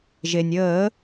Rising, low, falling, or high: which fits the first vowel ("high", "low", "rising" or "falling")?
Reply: low